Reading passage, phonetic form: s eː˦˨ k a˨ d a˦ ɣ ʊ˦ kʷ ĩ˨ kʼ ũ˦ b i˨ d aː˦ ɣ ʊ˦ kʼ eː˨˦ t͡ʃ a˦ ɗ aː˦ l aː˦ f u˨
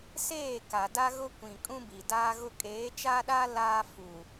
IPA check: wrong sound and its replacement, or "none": none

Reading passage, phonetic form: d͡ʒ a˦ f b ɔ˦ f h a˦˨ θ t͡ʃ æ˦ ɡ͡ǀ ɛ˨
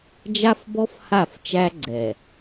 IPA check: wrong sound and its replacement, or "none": θ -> f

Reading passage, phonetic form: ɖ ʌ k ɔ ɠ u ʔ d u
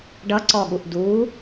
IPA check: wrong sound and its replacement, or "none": k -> ǀ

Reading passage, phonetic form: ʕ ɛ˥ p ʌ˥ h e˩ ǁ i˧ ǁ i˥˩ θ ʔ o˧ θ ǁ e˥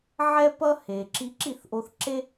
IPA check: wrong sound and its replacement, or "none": none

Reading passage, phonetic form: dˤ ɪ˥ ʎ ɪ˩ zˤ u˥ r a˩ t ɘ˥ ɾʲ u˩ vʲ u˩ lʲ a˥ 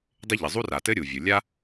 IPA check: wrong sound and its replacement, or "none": none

